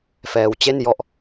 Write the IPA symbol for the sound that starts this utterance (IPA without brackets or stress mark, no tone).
f